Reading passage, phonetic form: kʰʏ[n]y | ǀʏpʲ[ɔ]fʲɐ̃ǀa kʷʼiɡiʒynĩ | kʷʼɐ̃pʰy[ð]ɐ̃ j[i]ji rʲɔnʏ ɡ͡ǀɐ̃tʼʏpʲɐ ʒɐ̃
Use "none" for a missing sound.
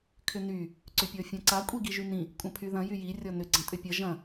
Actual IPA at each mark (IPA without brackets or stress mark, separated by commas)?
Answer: n, ɔ, ð, y